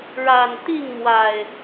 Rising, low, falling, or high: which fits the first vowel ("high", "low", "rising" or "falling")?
low